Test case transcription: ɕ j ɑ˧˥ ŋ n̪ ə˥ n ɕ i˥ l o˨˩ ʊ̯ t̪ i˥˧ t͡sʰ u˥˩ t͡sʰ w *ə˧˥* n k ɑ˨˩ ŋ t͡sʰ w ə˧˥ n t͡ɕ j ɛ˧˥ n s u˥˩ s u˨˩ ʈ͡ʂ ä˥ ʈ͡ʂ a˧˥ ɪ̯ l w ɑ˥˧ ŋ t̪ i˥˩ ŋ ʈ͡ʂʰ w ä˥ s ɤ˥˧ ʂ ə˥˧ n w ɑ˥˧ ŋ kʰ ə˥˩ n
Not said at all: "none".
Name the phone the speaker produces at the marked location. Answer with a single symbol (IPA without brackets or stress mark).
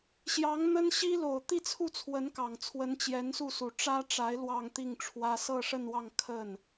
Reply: ə˧˥